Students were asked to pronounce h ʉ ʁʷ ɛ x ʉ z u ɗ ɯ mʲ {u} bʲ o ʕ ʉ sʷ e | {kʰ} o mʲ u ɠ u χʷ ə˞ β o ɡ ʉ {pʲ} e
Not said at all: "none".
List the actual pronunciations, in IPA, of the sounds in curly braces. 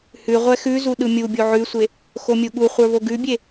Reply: u, x, bʲ

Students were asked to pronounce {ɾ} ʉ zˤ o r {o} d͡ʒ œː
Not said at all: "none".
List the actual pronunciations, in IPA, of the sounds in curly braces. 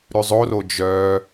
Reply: ɾ, o

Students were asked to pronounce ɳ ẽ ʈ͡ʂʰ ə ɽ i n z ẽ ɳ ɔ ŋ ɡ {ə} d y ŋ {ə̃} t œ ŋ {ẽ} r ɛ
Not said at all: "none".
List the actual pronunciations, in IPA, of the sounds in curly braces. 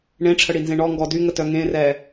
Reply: ɔ, ə, ẽ

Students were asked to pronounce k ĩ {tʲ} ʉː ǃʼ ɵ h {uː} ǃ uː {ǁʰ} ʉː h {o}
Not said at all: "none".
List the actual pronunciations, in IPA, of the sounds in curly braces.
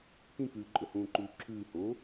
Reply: k, ũː, ǁʰ, o

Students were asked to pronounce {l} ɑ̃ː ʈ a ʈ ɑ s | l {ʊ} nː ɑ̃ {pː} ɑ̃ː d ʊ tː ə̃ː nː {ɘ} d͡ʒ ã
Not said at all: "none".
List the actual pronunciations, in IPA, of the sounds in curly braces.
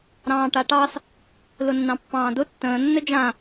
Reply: ɾ, ʊ, pː, ɘ

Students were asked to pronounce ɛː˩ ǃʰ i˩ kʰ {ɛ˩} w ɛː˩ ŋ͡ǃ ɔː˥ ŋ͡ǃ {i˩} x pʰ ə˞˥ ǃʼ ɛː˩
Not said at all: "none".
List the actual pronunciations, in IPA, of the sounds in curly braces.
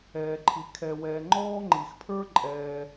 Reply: ɛ˩, i˩

